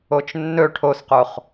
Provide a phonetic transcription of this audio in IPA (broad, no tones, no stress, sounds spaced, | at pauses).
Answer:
o t͡ʃ nː ɵ ʈʰ o s q o χ